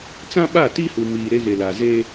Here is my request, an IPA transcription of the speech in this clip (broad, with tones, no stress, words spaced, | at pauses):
t͡sã˦ɓa˦˨ti˦hu˨ miː˨ɾe˦ɣe˨ la˨ze˦